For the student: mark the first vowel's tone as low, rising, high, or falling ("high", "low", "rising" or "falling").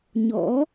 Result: rising